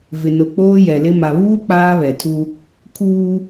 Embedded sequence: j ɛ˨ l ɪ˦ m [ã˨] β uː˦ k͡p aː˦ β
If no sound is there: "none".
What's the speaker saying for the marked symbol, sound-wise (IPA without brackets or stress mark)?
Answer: a˨